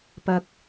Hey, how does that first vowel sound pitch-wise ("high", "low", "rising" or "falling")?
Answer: high